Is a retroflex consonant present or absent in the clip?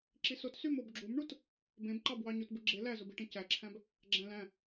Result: present